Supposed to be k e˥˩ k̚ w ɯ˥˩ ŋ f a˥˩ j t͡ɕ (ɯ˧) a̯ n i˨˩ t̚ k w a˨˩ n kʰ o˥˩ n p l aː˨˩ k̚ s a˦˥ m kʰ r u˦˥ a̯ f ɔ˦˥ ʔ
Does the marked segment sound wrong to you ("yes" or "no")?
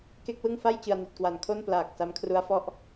no